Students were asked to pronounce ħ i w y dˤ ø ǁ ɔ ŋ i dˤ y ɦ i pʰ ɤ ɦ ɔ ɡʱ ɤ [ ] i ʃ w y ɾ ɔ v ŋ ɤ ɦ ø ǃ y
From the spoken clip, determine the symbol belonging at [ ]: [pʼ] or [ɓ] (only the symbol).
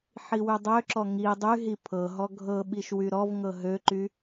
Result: ɓ